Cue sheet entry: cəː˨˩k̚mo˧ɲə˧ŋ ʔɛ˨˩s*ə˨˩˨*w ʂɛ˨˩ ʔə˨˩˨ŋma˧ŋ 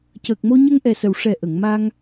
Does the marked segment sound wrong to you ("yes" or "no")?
no